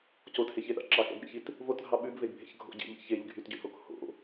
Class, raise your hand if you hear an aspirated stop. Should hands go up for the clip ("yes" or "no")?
no